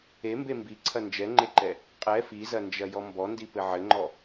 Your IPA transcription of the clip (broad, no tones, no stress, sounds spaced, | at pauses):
e m b e m b i ǀʰ ɐ n d͡ʒ ɛ ŋ͡ǃ e ǃ ɛ | qʼ ɛ f i z ɐ n d͡ʒ ɐ j ɔ m b ɔ n d i p ɘ ʕ ɘ ŋ͡ǃ ɔ